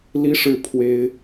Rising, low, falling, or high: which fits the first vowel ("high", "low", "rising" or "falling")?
high